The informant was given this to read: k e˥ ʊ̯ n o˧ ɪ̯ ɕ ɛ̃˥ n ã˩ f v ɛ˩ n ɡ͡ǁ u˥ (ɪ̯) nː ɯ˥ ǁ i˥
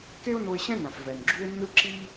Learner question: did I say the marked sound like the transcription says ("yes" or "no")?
yes